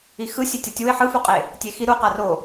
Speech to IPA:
i x ɯ sʲ e tʲ ʌ tʲ u ɪ̯ ħ ɯ f u qʼ e | tʲ e x i ɾ u q a r o

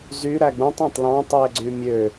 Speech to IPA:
z y ɾ æ ɡ͡b ũ tˤ ɑ̃ tˤ l ɑ̃ tˤ i e̯ ɡ͡ǀ y mʲ ø

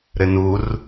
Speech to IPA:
ɾ ɘ n u r

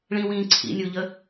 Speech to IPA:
ɭ ĩ w ĩː ǀʰ ḭ nʲ u ʎ ə

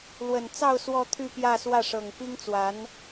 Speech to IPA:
l w ə˨˩ n t͡s ɑ˥˧ ʊ̯ s w ɔ˥˧ t̪ʰ y˥˧ p j ä˥˧ s w ä˥˩ ʂ ɤ˨˩ ŋ p i˥ ŋ t͡s w a˧˥ n

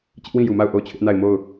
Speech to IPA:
t͡ɕ ɪ˦ ʔ w ĩ˦˨ j u˨ m a˦˨ ʊ̯ ʔ o˦˨ ʊ̯ t͡ɕʰ ɪ˦ ʔ n a˦˨ ɪ̯ m o˦˨ ʊ̯

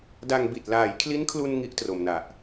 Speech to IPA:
d a˧ ŋ b i˨˩ t̚ l aː˩˦ j kʰ l i˦˥ n kʰ l u˧ n ŋ i˦˥ ʔ t r o˨˩ m n a˨˩ ʔ

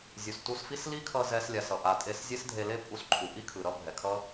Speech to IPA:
zʲ u˩ s t u˧ s f i˥ s l i˥ kʰ ʌ˧ z ɛ˧ s lʲ a˩ s ʌ˩ ʔ a˩ tʼ e˧ s zʲ e˥ s dʱ e˧ l e˥ pʼ u˧ s ǃʰ u˩ ʔ i˥ kʰ ɯ˩ ɾ ʌ˥ bʱ ɛ˩ kʰ ʌ˥

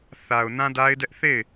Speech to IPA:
θ a˨ ʊ̯ n ã˦ d a˦ ɪ̯ d ɛ˦ ʔ θ e˦˨ ɪ̯

